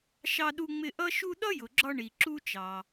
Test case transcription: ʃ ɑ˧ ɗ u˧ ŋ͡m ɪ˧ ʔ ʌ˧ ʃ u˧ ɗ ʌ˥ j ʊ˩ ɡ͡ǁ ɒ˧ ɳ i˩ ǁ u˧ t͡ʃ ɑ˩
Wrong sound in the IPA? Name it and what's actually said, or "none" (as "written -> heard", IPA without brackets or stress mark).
none